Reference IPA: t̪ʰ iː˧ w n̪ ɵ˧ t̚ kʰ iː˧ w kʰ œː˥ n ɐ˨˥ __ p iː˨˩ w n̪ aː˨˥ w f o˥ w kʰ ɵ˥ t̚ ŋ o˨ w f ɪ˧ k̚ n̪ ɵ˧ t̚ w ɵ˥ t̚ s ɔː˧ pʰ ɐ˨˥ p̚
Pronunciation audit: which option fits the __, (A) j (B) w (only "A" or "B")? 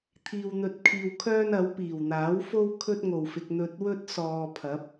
B